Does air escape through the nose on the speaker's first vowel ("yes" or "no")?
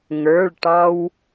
no